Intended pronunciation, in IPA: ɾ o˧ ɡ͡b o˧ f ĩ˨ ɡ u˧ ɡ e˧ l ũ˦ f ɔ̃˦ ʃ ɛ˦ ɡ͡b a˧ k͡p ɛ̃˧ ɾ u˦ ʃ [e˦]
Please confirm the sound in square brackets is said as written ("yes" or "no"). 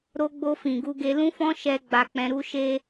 yes